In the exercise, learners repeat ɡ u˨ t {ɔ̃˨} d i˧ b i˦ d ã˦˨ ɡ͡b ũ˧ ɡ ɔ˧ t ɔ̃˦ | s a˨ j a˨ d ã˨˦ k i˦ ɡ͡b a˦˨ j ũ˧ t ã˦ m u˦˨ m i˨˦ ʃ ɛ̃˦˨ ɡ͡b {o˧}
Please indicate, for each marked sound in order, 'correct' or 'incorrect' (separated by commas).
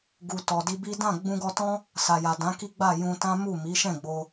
incorrect, correct